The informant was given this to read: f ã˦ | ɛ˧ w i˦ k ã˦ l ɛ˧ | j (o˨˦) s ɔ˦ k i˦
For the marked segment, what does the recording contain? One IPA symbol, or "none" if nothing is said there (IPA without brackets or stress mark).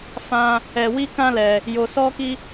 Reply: o˧